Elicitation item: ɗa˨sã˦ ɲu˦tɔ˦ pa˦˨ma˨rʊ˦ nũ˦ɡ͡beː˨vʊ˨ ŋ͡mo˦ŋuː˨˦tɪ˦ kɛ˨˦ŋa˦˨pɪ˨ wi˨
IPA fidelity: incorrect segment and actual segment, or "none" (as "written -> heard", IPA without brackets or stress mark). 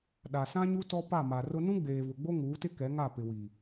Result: ŋ͡m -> ɡ͡b